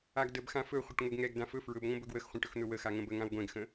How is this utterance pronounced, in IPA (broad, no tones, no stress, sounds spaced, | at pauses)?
a ɡ d ə b x ã f ɵ χʷ ə ʈ ŋʷ ɛ ɡ ŋ ɛ ɡ d ã f ɵ f ɹ ɵ b ŋʷ ə̃ b ɵ ɡ w ə x χʷ ã ʈ ɵ x n̪ ɵ w ə x a ŋ ə̃ b ə ŋ ã w ɡʷ ɛ̃ ɡ x ə̃